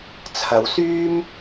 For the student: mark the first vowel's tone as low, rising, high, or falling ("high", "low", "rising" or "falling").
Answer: rising